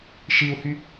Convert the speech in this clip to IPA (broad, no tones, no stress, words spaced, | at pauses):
ʃiu̯hy